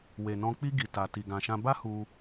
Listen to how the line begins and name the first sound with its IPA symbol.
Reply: w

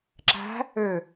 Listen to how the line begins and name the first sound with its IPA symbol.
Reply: ǁ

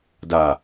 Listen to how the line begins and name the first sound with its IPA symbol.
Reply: d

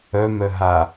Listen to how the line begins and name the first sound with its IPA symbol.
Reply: œ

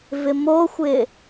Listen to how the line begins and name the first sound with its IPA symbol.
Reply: v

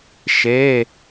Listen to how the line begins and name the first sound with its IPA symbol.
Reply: ʃ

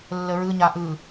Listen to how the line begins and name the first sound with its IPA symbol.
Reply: lː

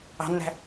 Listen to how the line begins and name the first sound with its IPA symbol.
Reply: ɑ̤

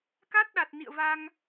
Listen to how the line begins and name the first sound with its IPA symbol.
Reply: k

